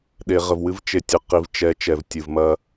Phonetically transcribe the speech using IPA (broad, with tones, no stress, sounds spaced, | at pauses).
ɗ e˨ ʁ ə˨ v w ɨ˦ v t͡ʃ e˨ tʲ ə˨ q i˨ v t͡ʃ ɛ˨˦ t͡ʃ ɛ˨ v tʲ ɨ˨ v m ɐ˦